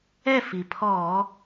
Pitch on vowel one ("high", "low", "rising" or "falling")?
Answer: falling